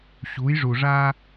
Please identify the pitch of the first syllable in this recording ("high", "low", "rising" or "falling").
rising